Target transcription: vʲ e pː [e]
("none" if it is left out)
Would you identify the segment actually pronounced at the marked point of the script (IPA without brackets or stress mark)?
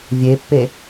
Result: e